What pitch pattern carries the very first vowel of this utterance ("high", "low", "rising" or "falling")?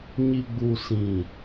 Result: low